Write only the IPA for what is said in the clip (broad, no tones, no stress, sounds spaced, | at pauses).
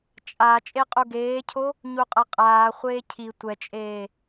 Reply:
t͡ʃʼ a t͡ʃʼ e qʼ u ɡ eː cʰ o | ɲ u qʼ ʌ qʼ aː χʷ eː cʰ i tʷ ɛ t͡ʃʼ eː